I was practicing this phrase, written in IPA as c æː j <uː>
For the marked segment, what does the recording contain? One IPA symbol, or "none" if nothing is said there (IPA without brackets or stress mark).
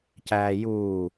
uː